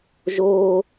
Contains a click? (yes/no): no